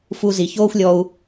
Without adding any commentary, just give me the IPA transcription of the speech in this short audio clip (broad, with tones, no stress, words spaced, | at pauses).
fu˧ zi˨çoː˦xʷ lʲɔ˧u̯